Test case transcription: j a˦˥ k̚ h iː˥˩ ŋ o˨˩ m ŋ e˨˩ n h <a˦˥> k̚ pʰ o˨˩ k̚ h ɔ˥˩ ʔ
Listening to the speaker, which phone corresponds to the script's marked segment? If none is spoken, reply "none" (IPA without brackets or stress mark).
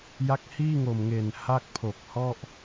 a˥˩